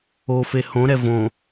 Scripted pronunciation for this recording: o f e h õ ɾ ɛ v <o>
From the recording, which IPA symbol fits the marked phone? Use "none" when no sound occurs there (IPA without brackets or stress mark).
õ